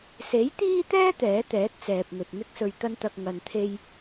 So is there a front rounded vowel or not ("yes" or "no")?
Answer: no